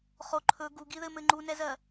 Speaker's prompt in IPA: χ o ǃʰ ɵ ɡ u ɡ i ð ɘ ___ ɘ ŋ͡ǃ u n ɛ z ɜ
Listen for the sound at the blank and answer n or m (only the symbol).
m